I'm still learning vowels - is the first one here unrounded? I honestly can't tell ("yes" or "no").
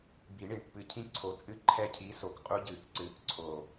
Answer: yes